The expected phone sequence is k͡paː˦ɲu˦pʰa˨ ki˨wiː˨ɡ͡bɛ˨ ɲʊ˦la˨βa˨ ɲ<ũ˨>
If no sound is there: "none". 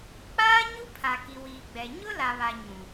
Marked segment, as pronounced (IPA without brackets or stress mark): ũ˨